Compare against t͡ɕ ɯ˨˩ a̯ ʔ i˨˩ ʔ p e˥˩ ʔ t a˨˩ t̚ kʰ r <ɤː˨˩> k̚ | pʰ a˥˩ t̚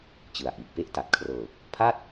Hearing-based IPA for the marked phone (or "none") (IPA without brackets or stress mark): ɤː˨˩